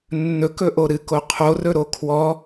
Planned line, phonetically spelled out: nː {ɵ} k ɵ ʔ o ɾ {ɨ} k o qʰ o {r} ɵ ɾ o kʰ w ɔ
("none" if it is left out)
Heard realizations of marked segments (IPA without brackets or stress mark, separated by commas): ɵ, ɨ, r